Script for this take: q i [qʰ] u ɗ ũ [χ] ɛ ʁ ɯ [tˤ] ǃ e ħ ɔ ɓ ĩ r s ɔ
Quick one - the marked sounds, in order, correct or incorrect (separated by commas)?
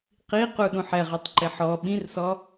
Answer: incorrect, incorrect, correct